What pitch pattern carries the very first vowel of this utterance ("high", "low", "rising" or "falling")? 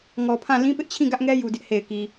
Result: low